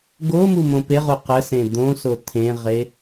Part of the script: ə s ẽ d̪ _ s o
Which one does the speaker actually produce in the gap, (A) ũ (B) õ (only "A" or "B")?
B